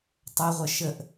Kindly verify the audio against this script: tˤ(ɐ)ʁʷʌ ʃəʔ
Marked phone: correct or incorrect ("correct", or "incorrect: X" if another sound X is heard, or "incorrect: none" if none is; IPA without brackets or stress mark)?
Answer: correct